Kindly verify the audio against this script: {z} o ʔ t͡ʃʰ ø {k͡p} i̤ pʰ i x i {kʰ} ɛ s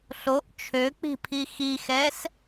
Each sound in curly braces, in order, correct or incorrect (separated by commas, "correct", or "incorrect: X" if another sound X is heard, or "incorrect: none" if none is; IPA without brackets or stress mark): incorrect: ɬ, correct, incorrect: x